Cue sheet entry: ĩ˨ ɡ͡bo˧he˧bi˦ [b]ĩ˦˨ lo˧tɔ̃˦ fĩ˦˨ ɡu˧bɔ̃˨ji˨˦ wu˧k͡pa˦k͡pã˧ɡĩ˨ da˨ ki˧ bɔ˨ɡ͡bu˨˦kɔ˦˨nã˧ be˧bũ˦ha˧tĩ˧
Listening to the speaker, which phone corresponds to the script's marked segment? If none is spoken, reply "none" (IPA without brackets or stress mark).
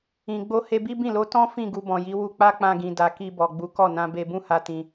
b